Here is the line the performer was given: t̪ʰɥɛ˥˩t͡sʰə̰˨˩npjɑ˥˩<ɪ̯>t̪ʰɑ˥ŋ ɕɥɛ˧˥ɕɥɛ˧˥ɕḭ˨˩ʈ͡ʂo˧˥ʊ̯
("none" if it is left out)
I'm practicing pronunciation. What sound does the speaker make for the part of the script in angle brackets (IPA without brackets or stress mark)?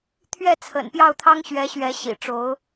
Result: ʊ̯